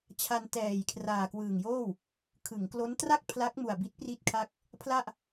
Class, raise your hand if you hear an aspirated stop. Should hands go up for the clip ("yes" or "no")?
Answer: yes